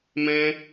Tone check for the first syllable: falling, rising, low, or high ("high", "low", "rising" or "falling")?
high